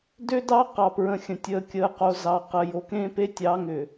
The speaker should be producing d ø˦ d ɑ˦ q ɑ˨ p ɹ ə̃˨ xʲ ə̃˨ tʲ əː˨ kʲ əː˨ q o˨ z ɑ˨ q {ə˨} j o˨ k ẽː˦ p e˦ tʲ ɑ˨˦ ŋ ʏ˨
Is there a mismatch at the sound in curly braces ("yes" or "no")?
no